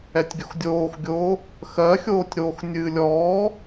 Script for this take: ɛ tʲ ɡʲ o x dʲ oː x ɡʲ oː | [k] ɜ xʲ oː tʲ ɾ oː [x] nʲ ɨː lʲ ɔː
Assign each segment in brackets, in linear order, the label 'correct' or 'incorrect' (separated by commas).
incorrect, correct